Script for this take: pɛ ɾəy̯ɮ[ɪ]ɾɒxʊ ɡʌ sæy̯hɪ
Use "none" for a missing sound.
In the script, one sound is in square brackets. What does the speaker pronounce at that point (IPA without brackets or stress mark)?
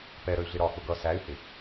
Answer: ɪ